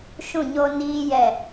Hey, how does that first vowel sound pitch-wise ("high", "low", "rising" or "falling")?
falling